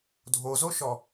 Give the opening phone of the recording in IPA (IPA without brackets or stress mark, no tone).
dʱ